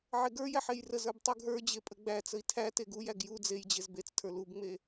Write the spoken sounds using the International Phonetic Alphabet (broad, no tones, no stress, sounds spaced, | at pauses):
ʕ e ɡ ə˞ j æ ħ e j r ə z ə˞ b tˤ u ɡ ɦ ə˞ d͡ʑ e pʼ ə ɡ͡b æ t͡s ə i̯ tʰ æ t e ɡ u j æ ɡ j u d͡z e j d͡ʑ e z b e t͡s tʰ ə˞ l u b ŋ͡m e